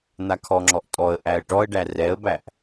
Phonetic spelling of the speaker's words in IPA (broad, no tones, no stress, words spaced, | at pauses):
n̪akʰɔŋ͡ǁɔʔ tʼɔə̯ʔæə̯ ʈɔə̯ɖæ rɛə̯bæʔ